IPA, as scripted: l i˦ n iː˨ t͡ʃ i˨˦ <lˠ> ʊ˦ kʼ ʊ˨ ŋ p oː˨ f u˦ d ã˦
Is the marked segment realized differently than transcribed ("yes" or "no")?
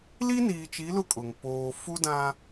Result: yes